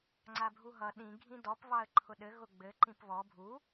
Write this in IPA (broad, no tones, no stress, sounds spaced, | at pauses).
ŋ͡ǀ a bʱ u ɦ ʌ ɗ ĩ ɡʱ ĩ d ɔ p β ɑ ə̯ ǃʰ ʊ ɗ ɘ ɣ ʊ ɡ͡b ɘ ǃ ĩ p β ɔ bʱ u